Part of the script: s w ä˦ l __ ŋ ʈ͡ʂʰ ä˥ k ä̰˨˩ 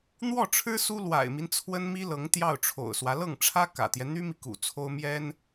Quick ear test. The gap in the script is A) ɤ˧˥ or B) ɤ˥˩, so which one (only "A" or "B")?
B